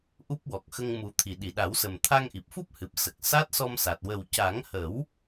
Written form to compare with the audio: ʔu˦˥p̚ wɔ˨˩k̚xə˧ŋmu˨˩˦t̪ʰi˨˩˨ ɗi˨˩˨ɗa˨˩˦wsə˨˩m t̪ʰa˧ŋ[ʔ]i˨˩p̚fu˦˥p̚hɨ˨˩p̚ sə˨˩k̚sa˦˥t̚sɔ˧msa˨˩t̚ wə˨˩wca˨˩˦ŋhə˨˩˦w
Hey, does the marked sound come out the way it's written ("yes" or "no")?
yes